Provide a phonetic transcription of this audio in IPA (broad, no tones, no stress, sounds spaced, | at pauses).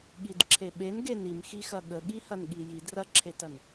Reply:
ɠ i d ǁʰ e ɓ e n ɡ e n i m x i x ɐ ɠ ə ɠ i h ɐ n ɠ i j i d r ɐ ǁʰ e t ɐ n